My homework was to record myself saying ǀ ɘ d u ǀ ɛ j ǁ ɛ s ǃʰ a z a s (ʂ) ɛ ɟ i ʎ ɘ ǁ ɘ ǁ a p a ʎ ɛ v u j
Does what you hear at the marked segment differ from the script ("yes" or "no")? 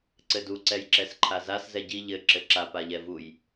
yes